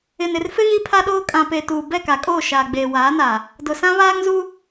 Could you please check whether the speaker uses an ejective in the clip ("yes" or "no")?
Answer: yes